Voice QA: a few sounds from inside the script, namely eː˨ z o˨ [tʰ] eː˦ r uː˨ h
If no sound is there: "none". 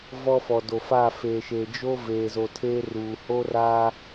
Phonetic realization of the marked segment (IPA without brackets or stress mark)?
tʰ